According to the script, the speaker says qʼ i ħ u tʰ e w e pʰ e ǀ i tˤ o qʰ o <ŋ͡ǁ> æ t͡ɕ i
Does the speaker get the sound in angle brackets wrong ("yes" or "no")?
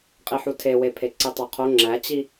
no